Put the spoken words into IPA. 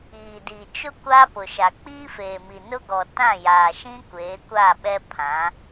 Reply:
iː˨ d i˨ t͡ʃ ʊ˦ kʷ aː˦ p ʊ˨ ʃ a˨ k͡p iː˦ f eː˨ m i˨ n ʊ˦ ɡ ɔ˨ t ã˦˨ j aː˨ ʃ ĩ˦ kʷ eː˨˦ kʷ a˦˨ ɓ ɛ˦ pʰ ã˨˦

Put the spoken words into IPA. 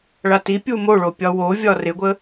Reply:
ɭ a t i pʲ u m o ɭ o pʲ ɒ w o vʲ ɒ r ɪ ɡʷ ə

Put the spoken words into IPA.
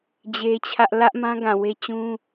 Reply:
d͡ʑ e˦ t͡ɕʰ ä˦ ʔ l ä˦ ʔ m ã˦ ɡ ã˨ w e˦ t͡ɕ ũ˦

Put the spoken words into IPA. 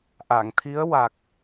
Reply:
ʔ a˨˩˨ ŋ t̪ʰ i˧˥ ə̯ w a˨˩ k̚

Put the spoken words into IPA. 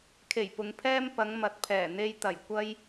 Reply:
kʰ e˨˩ j p ʊ˨ ŋ pʰ ɛː˥ m p ɐ˨˧ ŋ m ɐ˨ t̚ pʰ ɛː˨˩ n̪ e˧ j t̪ ɐ˨˩ j kʷ ɐ˥ j

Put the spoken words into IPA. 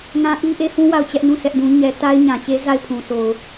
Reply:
ŋ ã˦ ʔ i˦ ʔ e˦ h ũ˦ w a˦˨ ʊ̯ t͡ɕ ɛ˦ ʔ n ũ˦˨ s ɛ˦ ʔ d ũ˦ ɲ ɛ˦ t a˦ ɪ̯ ɲ ã˨ t͡ɕ e˦ z a˦˨ ɪ̯ pʰ ũ˨ s o˨ ʊ̯

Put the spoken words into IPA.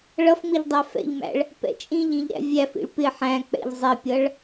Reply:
ɭ ʌ f ŋ͡m ɪ ʎ dˤ æ f ɛ̰ ʎ m æ̰ ɭ | p ɛ̰ t͡ʃʼ ĩ ʎ ĩ ʎ ɾ æ̰ vʲ æ f ḭ ɭ p ɪ ħ æ̃ k͡p ɛ̰ ʎ zˤ ɪ pʲ ʌ ɭ

